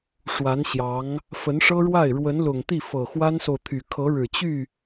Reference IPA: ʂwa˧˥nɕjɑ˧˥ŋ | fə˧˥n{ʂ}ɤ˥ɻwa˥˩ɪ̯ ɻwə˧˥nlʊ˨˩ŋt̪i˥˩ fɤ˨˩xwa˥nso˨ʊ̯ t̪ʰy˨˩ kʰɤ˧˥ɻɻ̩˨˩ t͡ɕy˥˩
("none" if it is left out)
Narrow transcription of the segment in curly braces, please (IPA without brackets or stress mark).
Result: ʂ